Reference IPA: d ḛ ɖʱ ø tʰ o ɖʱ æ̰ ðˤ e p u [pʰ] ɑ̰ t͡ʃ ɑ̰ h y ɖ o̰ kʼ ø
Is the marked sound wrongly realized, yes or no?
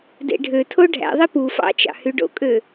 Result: yes